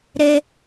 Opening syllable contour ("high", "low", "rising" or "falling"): high